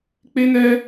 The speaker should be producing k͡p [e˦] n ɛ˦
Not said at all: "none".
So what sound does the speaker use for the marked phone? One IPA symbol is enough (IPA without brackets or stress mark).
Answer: e˦